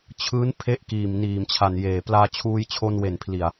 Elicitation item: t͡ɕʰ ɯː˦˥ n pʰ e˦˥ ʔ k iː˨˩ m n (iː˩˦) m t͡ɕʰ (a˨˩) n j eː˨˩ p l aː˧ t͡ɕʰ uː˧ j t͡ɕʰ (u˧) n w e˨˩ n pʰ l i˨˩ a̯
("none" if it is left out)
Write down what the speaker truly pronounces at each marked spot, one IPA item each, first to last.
iː˨˩, a˨˩, o˧

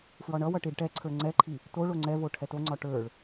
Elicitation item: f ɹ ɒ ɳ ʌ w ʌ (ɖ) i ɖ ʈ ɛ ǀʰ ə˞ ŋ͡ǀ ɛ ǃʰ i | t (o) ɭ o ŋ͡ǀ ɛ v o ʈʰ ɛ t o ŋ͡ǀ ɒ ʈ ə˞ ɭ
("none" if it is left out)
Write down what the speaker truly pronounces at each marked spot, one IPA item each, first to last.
ʈ, o

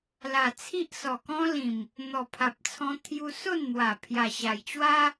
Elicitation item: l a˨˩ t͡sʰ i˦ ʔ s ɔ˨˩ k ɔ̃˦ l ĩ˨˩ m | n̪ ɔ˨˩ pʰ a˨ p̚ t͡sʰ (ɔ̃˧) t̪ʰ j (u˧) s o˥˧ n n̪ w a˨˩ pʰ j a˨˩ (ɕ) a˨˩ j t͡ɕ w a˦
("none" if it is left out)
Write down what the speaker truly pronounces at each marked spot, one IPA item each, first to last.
ɔ̃˧, u˧, ɕ

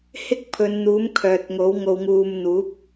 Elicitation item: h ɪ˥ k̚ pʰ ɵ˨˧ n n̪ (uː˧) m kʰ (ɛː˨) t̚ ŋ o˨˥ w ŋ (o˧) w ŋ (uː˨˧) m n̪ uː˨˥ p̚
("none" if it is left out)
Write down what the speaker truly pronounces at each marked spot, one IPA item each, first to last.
uː˨˥, œː˨, o˧, uː˧

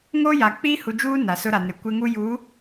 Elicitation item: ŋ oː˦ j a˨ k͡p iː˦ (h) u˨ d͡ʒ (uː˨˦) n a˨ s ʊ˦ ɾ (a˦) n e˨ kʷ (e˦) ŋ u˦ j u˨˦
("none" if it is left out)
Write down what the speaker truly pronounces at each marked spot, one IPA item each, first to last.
h, uː˦, a˨, e˦

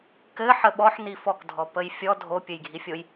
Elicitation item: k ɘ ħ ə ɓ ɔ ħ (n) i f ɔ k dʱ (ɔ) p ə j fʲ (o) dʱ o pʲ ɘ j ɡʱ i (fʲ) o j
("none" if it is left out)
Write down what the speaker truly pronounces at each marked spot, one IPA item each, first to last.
n, ɔ, ɔ, fʲ

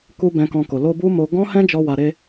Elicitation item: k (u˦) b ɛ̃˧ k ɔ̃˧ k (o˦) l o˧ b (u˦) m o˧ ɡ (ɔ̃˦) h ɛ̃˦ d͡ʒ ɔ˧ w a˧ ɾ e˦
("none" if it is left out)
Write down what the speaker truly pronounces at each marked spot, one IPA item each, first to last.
u˦, o˨, u˦, ɔ̃˦

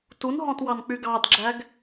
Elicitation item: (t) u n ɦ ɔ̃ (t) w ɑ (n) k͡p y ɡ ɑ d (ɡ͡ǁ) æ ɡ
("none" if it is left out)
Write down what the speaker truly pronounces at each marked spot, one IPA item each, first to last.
t, t, n, ɡ͡ǁ

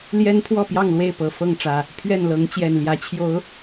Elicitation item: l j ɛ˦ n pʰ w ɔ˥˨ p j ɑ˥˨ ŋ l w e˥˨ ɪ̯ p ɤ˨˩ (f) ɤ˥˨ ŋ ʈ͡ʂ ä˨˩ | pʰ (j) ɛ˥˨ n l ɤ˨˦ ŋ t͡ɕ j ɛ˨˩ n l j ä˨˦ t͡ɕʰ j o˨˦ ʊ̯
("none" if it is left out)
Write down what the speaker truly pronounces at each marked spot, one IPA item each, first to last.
f, ɥ

